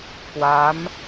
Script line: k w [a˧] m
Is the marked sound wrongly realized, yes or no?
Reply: yes